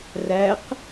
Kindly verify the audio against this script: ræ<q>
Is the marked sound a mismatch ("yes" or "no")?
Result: no